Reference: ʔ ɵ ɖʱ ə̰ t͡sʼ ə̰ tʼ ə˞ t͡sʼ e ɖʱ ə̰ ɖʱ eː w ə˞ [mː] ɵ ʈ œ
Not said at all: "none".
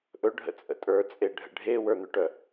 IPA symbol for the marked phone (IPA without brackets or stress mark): n̪